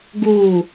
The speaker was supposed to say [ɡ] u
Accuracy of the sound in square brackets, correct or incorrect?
correct